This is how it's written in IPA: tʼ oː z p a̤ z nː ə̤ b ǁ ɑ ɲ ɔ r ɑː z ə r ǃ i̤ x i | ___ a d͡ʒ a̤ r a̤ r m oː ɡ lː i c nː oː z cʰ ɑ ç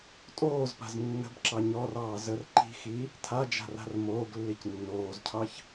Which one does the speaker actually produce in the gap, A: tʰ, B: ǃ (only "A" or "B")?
A